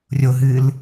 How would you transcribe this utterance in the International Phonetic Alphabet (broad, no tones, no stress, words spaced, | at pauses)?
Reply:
rʲoɦɨːl